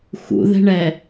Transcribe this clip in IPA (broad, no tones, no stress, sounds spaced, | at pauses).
x ṵ ð ɛ̤ ɳ ɛ